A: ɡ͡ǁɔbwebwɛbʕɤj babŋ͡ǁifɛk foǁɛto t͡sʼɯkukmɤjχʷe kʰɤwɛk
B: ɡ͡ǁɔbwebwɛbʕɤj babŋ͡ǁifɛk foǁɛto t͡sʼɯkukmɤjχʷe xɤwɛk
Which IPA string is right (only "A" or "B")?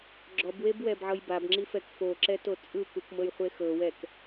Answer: B